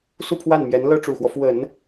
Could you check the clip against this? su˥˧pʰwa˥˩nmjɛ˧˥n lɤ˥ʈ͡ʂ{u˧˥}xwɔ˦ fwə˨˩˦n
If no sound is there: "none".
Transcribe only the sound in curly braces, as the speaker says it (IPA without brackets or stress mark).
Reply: u˨˩